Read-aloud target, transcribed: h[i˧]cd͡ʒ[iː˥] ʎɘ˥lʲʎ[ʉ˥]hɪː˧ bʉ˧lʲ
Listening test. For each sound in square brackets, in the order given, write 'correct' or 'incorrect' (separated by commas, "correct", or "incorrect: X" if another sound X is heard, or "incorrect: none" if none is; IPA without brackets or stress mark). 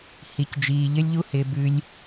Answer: correct, incorrect: iː˧, incorrect: u˥